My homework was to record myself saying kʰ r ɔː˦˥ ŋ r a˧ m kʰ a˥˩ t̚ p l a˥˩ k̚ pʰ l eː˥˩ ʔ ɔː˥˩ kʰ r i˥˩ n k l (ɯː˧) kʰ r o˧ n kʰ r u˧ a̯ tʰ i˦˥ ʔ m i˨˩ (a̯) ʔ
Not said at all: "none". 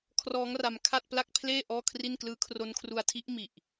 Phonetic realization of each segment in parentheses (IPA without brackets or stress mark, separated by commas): ɯː˦˥, none